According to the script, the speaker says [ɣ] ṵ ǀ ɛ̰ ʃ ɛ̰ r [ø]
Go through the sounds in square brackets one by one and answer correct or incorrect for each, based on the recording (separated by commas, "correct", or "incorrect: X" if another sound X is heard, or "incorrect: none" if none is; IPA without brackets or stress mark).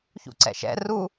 incorrect: ç, incorrect: u